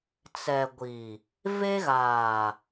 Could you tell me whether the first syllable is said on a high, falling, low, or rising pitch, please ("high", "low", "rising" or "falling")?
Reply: low